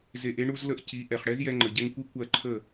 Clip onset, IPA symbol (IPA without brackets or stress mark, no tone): z